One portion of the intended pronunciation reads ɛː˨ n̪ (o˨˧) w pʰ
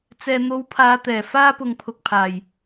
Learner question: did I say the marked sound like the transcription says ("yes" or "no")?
yes